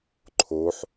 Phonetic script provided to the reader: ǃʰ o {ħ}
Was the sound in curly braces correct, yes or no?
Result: yes